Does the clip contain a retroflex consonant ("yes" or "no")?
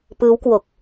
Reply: no